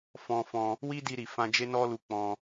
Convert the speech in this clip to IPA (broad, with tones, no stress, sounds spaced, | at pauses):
f ɔ̃˧ f ɔ̃˧ | w i˦ d i˧ ɾ i˨ f ã˧ d͡ʒ e˦ n ɔ˦ l u˧ k͡p ɔ̃˧